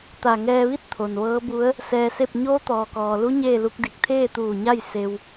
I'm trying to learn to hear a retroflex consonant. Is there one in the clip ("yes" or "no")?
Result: no